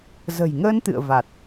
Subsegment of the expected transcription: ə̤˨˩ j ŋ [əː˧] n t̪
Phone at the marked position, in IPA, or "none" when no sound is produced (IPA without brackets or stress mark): əː˧